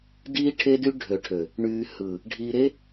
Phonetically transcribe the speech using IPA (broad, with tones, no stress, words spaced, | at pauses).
diː˦ʈʰe˦dy˦ ɖʱø˨ʈʰø˨ | ɳyː˨hɯː˨ | ɖʱiː˨ɾe˦